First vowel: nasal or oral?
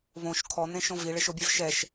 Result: nasal